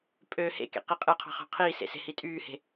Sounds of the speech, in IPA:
pʼ ø h ḛ k ḛ q i qʼ ɯ qʰ ɑ̤ χ ɑ̤ qʰ iː s ḛ s e̤ h i tʼ yː h e̤

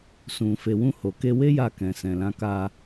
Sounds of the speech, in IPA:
s ũ˨ f e˨ w ũ˧ h o˨ k e˧ w e˦ j a˧ k ɛ̃˨ s ɛ̃˨ l ã˧ k a˧

